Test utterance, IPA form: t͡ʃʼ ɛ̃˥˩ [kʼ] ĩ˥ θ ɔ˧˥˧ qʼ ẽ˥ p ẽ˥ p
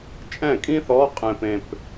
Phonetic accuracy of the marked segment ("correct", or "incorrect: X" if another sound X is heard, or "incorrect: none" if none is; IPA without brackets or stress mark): correct